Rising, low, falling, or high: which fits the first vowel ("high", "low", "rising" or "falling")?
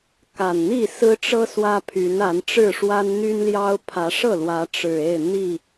low